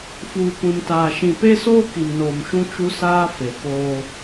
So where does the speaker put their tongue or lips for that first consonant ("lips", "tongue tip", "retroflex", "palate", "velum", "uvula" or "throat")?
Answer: lips